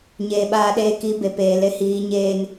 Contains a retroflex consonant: no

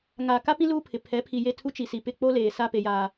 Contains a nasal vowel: yes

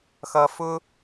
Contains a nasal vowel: no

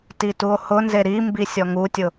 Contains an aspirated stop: no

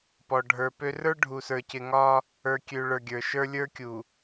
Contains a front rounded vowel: yes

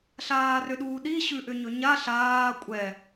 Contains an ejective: yes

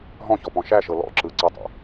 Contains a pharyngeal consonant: no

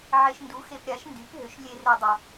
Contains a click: no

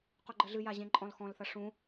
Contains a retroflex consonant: yes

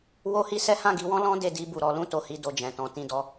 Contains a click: no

